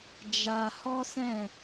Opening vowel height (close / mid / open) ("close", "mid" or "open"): open